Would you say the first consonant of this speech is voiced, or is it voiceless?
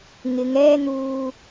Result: voiced